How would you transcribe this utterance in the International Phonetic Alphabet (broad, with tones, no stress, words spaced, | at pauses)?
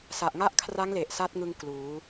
sa˨˩ʔŋa˦˥ʔkʰra˦˥ŋle˨˩ʔ sa˦˥t̚ŋɯ˧ŋ kluː˩˦